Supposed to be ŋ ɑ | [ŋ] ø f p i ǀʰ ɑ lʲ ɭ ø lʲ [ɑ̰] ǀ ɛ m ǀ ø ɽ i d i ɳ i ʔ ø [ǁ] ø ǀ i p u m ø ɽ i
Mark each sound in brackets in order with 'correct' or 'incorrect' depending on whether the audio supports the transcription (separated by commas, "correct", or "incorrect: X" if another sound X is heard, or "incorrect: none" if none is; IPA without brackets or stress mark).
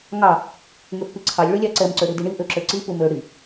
correct, incorrect: ɑ, correct